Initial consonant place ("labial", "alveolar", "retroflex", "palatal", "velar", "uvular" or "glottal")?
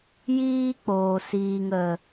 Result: palatal